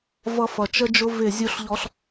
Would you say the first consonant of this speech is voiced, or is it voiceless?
voiced